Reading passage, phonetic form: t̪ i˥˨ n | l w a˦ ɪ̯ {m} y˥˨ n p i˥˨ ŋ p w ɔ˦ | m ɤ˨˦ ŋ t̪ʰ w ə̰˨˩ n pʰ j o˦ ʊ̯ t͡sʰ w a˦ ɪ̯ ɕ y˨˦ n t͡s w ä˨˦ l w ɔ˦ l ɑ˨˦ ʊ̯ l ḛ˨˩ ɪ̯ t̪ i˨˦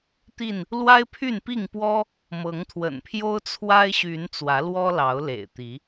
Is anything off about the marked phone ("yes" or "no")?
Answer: yes